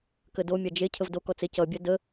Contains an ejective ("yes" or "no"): no